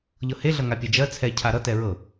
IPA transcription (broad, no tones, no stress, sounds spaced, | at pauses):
ʎ ɤ h e ɮ ʌ ŋ a pʲ e d͡ʒ ɜ t͡sʰ ɛ cʰ a ɾ ʌ t ɛ ɹ ɤ